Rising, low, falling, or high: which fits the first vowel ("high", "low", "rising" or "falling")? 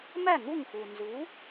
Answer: falling